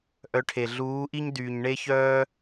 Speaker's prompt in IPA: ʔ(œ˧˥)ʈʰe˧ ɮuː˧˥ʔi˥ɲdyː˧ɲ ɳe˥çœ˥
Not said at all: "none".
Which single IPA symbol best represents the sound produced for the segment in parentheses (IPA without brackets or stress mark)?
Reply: œ˧˥